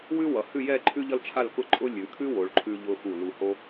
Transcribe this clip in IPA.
w ʉ˥ w ʌ˩˧ h ʉ˥˧ j ɛ˥˧ ǃʰ ʉ˥ ʎ ʌ˥ l t͡ʃʰ a˥˧ l k ʊ˥˧ ǃʼ ʊ˥ lʲ ʉ˩˧ kʰ ʉ˥ w o˩˧ ɭ ǃʰ ʉ˧ ʎ ʊ˧ x u˧˩ l u˧ h o˥

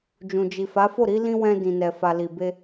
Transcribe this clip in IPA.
d͡ʒ ũ˨ d͡ʒ i˨ f a˨˦ f o˦˨ ɾ i˨˦ l ĩ˧ w ɛ̃˧ d ĩ˨ n ɛ˨ f a˨ l i˨ b e˧

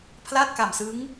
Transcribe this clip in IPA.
pʰ l a˥˩ t̚ k a˨˩ m s ɯ˦˥ ŋ

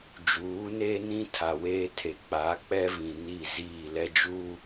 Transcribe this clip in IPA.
d͡ʒ uː˨˦ n eː˦ n ĩ˦ tʰ a˨ w eː˦ tʰ e˨ k͡p a˨˦ k͡p ɛ˦ v ĩ˨ n i˦˨ z iː˦˨ l ɛ˦ d͡ʒ u˦

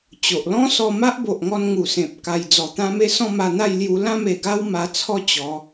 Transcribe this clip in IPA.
t͡ɕ o˨ ʔ l ɔ̃˦ s ɔ˧ m a˦ ʔ b o˨ ʔ ŋ ɔ˧ n ŋ u˨˩ s ẽ˨ p̚ k a˧ j d͡z ɔ˨˩ t̪ ã˦ m e˦ s ɔ̃˥˧ m a˧ n̪ a˥˧ j l j u˧ l ã˥˧ m e˨˩ ɡ a˦ w m a˧ t͡sʰ ɔ˦ t͡ɕ ɔ˨˦

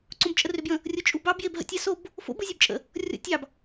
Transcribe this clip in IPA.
ǀ õ b t͡ʃʼ ə r ʏ b j ə̃ | rʲ o t͡ʃʼ u b ɑ b j e b ɦ ə̰ tʲ ɑ s o b | f o̰ b ɯ zʲ ɯ b t͡ʃʼ ə̰ | rʲ ɔ̰ tʲ ɑ b

